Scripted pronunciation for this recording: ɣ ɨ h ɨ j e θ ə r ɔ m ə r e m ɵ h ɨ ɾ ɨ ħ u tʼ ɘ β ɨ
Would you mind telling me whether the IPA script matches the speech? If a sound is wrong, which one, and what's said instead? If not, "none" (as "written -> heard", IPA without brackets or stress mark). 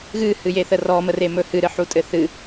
β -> θ